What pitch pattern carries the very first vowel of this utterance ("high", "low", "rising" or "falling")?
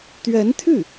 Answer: rising